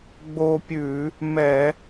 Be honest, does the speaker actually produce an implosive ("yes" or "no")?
no